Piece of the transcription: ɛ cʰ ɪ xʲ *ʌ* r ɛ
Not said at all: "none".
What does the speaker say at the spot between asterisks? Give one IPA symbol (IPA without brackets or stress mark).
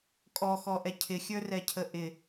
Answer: ə˞